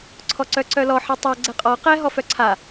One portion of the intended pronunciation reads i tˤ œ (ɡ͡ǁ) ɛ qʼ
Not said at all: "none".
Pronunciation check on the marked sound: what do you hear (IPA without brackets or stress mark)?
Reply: ɡ͡ǀ